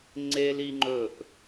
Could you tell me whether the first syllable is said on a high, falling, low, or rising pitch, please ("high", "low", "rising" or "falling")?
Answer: high